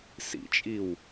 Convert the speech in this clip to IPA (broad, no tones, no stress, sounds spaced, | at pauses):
s ḭ t͡ʃʼ i w